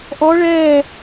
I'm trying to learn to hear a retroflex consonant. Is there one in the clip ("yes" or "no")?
yes